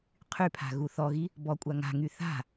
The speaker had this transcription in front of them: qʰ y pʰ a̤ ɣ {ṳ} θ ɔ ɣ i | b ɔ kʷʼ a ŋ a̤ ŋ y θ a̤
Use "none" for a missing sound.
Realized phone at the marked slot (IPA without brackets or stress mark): u